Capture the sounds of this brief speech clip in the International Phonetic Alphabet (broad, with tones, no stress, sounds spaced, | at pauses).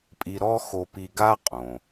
pʼ i˧ ɾ ɔ˥ x o˧ p i˧ ɡ a˥ qʼ õ˩